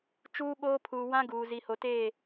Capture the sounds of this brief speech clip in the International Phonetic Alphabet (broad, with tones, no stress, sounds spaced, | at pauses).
t͡ʃ uː˦ ɓ oː˦ pʰ uː˨ w ã˦ ɡ uː˨ z i˨ h o˨ t eː˦˨